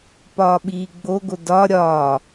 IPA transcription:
p ɒː ɓ iː ɡ͡b o ɡ o d ɒ ɾʲ ɒː

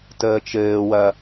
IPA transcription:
t əː t͡ʃ ɘː w ɐ

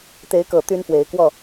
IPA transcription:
t̪ e˨˦ ɪ̯ k ɤ˨˩ t̪ y˦ n f w e˨˦ ɪ̯ k w ɔ˥˨

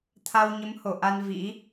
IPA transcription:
t̪ʰ a˧ w ɲ ə˨˦ m h o˧˩ ʔ a˧ n v ḭ˧˥

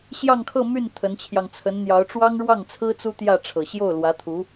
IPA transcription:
ɕ j ɑ˥˧ ŋ kʰ ɤ˥˧ m y˥˩ n t̪ʰ ə˧˥ n t͡ɕʰ j ɑ˧ ŋ t͡sʰ ə˧˥ n n̪ j ɑ˧˥ ʊ̯ ʈ͡ʂ w ɑ˥ ŋ ɻ w ɑ˥˩ ŋ t͡sʰ ɹ̩˥ t͡s u˥ t̪ j ä˥˩ ʈ͡ʂʰ ɤ˨˩ ɕ j o˥˩ ʊ̯ l w ä˧˥ t̪ʰ u˧˥

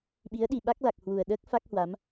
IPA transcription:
ɓ i˨˦ ə̯ ɗ i˨˩ ɓ a˦˥ k̚ l a˨˩ k̚ h w u˨˩ ə̯ ɗ əː˦˥ k̚ f a˦˥ k̚ h w a˨˦ m

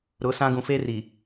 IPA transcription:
ɾ ʊ˨˦ s ã˦ ɡ ũ˨ f eː˦ r i˨

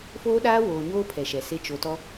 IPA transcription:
f oː˦ ɗ aː˦ w oː˨ ɲ oː˦ pʰ ɛ˨ ʃ ɛ˨ s e˦ t͡ʃ o˨ t ɔ˦

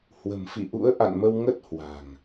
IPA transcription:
h w ə̤˨˩ m f ḭ˧˨ ʔ ṵ˧˥ ə̯ ʔ a̰˧˨ n m ə˧ w ŋ ə˦˥ t̚ h w a̤˨˩ ŋ

